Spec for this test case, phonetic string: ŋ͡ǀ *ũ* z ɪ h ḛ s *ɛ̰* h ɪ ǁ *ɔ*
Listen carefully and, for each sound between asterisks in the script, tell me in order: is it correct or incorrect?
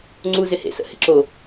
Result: incorrect: u, incorrect: ə̰, incorrect: o

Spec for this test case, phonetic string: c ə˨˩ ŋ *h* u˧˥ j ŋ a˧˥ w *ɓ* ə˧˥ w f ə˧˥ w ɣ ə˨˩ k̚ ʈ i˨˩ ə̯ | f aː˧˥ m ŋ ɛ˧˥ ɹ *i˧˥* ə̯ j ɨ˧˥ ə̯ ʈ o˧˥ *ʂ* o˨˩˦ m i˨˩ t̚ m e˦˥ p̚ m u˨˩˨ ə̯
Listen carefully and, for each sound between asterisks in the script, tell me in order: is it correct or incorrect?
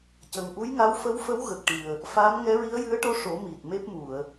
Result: incorrect: ʔ, incorrect: f, correct, correct

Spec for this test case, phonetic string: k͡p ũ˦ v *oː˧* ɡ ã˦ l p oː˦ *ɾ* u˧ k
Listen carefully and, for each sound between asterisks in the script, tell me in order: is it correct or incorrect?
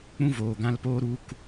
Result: incorrect: oː˨, correct

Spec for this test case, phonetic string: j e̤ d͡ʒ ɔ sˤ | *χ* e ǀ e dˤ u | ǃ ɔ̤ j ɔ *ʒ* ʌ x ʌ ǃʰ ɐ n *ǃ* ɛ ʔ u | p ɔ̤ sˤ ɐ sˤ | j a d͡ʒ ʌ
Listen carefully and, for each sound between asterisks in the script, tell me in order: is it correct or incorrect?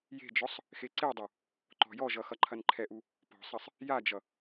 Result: incorrect: x, correct, incorrect: ǃʰ

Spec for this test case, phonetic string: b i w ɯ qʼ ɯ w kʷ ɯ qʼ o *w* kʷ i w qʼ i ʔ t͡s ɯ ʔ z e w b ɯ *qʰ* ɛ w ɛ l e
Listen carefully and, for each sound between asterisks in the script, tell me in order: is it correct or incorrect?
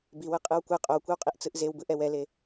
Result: correct, incorrect: ʔ

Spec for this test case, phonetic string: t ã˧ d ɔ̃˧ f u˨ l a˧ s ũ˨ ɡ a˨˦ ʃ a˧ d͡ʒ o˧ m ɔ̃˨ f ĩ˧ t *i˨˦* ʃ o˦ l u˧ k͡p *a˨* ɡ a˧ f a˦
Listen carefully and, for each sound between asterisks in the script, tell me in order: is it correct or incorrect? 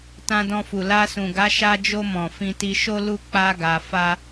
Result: incorrect: i˧, incorrect: a˧

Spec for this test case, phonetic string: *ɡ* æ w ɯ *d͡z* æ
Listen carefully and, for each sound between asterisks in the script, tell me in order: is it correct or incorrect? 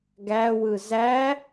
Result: correct, incorrect: z

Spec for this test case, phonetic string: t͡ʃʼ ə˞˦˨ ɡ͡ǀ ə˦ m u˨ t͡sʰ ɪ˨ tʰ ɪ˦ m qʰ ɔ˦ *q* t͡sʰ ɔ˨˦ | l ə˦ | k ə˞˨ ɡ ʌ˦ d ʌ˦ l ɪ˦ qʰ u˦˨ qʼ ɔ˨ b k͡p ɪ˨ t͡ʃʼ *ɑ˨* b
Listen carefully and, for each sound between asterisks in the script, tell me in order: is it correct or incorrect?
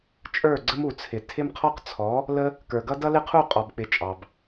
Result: correct, correct

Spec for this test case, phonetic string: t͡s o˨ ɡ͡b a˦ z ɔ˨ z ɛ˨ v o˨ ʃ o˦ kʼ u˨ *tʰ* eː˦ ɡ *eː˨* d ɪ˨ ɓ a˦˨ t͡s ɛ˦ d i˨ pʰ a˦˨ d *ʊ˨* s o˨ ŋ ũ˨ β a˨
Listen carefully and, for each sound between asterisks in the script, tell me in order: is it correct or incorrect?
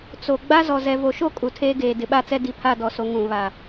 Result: correct, correct, incorrect: ɔ˨

